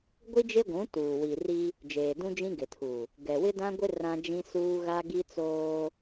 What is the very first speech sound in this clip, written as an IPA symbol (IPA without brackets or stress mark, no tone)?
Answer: ɡʷ